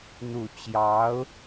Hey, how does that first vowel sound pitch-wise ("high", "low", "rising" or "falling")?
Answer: low